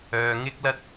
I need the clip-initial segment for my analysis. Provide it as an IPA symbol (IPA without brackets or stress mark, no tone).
œː